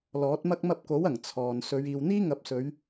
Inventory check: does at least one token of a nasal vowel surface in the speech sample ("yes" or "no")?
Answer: no